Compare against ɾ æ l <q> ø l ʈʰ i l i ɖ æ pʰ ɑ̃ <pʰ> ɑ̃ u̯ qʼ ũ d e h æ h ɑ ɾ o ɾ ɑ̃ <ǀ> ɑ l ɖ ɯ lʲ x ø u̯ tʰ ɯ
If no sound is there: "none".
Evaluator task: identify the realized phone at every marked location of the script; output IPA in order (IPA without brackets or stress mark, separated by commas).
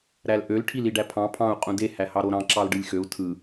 ʔ, pʰ, ǁ